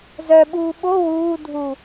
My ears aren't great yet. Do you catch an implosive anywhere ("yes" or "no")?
yes